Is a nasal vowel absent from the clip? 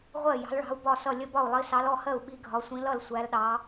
no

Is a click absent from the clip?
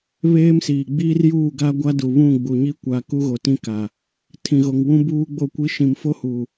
yes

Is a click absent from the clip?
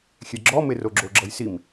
no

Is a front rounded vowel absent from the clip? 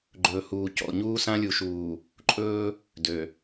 no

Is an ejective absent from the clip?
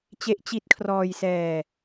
yes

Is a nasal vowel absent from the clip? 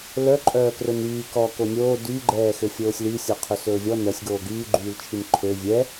yes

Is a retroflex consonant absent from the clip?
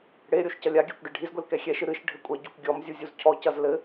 no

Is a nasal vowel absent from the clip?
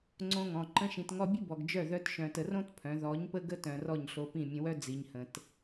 no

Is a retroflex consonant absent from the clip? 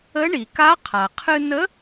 no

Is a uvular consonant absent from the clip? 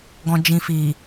yes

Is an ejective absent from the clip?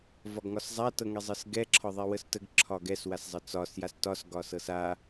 yes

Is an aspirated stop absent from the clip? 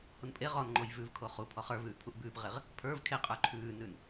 no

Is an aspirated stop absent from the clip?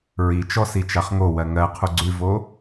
no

